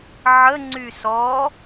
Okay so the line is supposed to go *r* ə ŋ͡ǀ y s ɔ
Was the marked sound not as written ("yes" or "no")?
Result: yes